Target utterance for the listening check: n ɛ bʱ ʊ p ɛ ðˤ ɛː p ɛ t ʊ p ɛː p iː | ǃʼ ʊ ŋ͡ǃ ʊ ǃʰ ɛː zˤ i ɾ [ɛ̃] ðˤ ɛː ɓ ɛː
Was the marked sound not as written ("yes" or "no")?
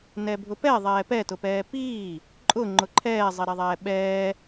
yes